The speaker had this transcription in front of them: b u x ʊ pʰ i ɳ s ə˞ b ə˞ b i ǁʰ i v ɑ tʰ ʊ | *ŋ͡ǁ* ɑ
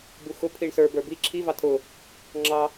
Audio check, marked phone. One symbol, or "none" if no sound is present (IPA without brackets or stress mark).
ŋ͡ǁ